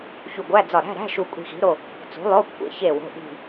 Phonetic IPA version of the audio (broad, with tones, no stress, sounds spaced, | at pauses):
ç u˧˩ ɡʷ æ˧˥˧ d͡z ɒ˧˩ ɾ æ̤˧˥˧ ɾ æ̤˧˥˧ ʃ u˧˩ kʷʼ i̤˧˩ x i̤˩˥ ɾ o˩˧˩ | t͡s ṳ˩˥ lˠ o˧˥˧ kʷʰ ḛ˩˧˩ ç e˧˩ w o̤˩˧˩ ʔ i̤˧˩